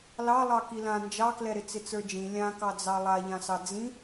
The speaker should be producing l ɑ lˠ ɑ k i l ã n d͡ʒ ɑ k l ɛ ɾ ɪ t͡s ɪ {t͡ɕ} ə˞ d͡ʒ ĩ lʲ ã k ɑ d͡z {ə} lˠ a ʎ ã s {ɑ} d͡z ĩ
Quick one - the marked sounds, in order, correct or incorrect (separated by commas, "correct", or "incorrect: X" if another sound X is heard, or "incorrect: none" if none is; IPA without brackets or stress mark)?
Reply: incorrect: t͡s, incorrect: ɑ, correct